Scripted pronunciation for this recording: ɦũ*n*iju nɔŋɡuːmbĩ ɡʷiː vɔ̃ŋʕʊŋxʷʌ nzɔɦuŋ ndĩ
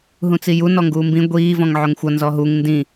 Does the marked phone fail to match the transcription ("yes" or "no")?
yes